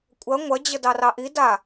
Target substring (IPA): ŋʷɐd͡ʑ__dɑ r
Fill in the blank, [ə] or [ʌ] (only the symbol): ə